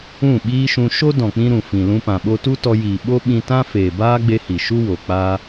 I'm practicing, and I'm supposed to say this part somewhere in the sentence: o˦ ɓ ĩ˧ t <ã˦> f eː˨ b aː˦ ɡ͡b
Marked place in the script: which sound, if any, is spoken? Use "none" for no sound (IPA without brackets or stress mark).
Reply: ã˦